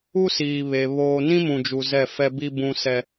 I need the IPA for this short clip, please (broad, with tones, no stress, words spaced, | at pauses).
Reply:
u˦siː˨ βe˨ βoː˨nĩ˦ mũ˨d͡ʒu˨ zɛ˦˨fɛ˦bi˦ bũ˦sɛ˦